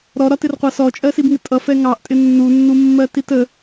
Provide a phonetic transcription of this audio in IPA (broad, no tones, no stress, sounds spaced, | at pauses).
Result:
ɾ ɔ ɾ ɒ t ɪ r qʷ ɑ s ɔ t͡ʃʼ ɜ s i b ŋ ɪ tʼ ʌ f ɛ ŋ ɑ ʔ tʼ ɪ nː u nː u mː ɜ t i t ə